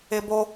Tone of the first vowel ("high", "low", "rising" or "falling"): high